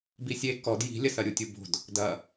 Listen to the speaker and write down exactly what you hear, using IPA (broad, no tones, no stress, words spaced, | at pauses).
bisʲe kɔd ji̤lʲɐsɐɾʲu tʲubo̤d | dɐ